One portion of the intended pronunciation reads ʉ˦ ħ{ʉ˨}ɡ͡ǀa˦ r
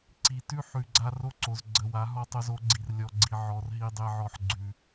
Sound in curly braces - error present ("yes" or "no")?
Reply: no